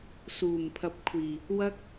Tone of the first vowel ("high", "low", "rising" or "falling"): low